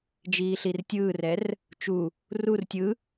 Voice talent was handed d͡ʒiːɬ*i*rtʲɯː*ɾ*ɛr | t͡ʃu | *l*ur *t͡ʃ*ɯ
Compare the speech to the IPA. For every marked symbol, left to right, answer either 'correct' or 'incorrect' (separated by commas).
correct, incorrect, incorrect, incorrect